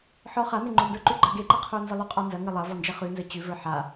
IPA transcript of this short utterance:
ħ ɔ χ a n e ŋ͡ǃ o n d ə˞ ǃ ʉ ɡ͡ǃ ɐ ɡ e ǃ ɐ qʰ ə˞ n z ə lˠ ʉ qʼ ɔ n z ɐ ŋ ɘ lˠ ɐ v ɔ n d͡ʒ ɐ χ ʉ n z ɘ t͡ɕ ʉ v ə˞ ħ a

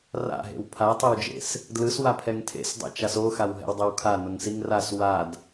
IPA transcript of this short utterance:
r a̰ ɦ ḛ w pʰ a tˤ ɛ w d͡ʒ ḛ s | d l ɯ s w a pʰ ɛ ŋ tʰ ḛ s dˤ ɛ̰ t͡ʃ a s o x a w ɦ ɛ̰ w dˤ ɛ w kʰ a n o ŋ s i ŋ r a s w a d

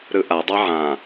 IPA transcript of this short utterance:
ɾ ɯ ʔ a dˤ a ʕ ã

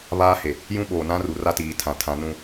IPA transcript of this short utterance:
β aː˦ h e˨ | j ũ˦ ɓ oː˨ n ã˦ r u˨ r a˦ t iː˨ tʰ ã˨ tʰ ã˨˦ n ũ˦˨

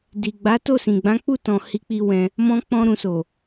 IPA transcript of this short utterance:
d i˨ ɡ͡b a˨˦ t o˦˨ s ĩ˨ ɡ͡b ã˨˦ k͡p u˦˨ t ɔ̃˨ h i˧ k͡p i˧ w ɛ̃˧ | m ɔ̃˧ k͡p ɔ̃˧ ɾ ũ˨ s o˨

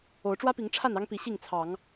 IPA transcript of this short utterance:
o˨˦ ʊ̯ ʈ͡ʂ w ä˦ p i˨˦ ŋ ʈ͡ʂʰ a˥˨ n ɑ˦ ŋ p i˨˦ ɕ i˥˨ ŋ t͡sʰ ɑ˨˦ ŋ

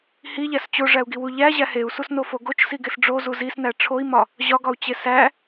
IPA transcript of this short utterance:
h i ʎ æ s t͡ɕ o ʐ æ u̯ ɡ i w u ʎ æ ʑ æ h e u̯ s u s n o f o ɡ o t͡ʃ s i ɡ e s ɖ͡ʐ o z u z i s n æ ʈ͡ʂʰ o i̯ m ɒ | ʑ ɒ ɡ ɒ u̯ t͡ɕ e s æ

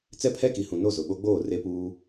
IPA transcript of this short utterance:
t͡s ɛ˦ pʰ ɛ˦ k i˨ h ũ˨ n o˦˨ z ʊ˨ ɓ o˦ ɡ͡b oː˦˨ r e˦ p uː˦

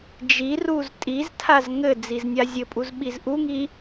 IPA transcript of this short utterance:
d͡ʒ i r u z tʼ i z tʰ a z ŋ ɘ d͡z i z nʲ a zʲ ɘ pʼ u z ɓ i z ʔ u ŋ i

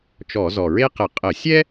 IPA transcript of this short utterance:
t͡ʃ ɔ˧˩˧ z ɔ˨˩ ɹ e˥ q ə˧˩˧ qʼ ə˧˩˧ sʲ ɛ˥

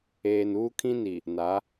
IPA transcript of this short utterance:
eː˨ n uː˦ kʰ ĩ˦ n i˨ | n a˨˦

